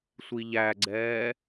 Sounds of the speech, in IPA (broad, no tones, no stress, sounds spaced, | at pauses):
sʷ i ʎ æ ɡ͡ǀ ɛː